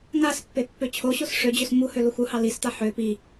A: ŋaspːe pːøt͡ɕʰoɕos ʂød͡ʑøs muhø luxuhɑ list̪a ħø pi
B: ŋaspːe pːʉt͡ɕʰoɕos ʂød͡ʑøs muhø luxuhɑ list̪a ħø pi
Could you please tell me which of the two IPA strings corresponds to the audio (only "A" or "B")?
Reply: A